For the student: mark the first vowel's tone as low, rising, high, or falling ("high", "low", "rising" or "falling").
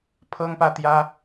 high